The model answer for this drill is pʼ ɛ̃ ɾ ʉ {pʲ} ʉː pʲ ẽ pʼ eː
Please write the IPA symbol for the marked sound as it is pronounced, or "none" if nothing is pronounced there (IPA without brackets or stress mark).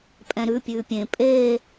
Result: pʲ